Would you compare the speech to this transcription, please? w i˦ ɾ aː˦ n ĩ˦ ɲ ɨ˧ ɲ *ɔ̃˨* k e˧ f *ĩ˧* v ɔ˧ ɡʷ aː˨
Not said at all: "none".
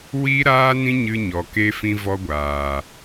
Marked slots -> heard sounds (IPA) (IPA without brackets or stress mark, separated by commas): ɔ˨, ĩ˧